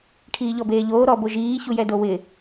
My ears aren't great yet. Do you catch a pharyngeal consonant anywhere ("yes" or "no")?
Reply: no